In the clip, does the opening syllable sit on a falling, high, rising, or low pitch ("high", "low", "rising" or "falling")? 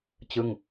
falling